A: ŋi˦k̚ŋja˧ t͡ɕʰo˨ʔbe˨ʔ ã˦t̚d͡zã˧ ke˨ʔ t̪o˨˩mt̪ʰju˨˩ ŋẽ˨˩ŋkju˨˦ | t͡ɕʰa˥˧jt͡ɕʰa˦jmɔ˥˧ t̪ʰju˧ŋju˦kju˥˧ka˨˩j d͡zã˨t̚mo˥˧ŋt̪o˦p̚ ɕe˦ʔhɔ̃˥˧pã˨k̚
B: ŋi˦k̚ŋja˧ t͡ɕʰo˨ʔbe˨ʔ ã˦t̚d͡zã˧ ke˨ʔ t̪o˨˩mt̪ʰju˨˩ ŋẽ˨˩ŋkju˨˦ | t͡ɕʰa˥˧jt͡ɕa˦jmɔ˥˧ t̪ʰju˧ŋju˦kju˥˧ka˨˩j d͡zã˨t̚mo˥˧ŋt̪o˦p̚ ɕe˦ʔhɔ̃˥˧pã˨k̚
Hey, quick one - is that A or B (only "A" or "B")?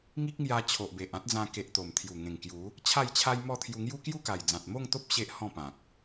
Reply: A